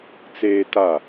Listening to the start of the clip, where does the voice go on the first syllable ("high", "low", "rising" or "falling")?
high